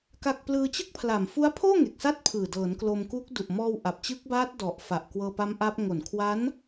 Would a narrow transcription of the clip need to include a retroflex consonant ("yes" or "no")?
no